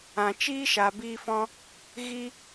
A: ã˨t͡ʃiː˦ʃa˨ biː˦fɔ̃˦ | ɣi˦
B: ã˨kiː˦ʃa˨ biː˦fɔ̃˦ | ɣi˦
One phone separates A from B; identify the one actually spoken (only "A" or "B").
A